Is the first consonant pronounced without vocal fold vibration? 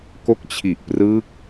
yes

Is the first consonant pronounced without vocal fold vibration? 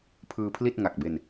yes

